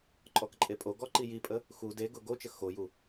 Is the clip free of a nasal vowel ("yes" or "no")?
yes